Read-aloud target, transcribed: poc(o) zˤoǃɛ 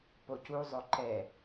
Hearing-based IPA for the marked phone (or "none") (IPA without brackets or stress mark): u